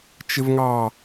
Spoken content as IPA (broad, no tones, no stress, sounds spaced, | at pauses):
t͡ʃ ɪ v ŋ ɑ